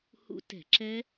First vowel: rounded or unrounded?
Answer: rounded